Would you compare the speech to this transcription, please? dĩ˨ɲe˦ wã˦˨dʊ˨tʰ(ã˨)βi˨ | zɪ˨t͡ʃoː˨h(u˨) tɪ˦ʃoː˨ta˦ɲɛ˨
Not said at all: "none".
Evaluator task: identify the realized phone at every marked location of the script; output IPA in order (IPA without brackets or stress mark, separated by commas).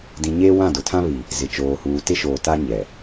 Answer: ã˦, uː˨